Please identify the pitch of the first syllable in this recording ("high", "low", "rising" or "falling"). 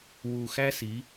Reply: low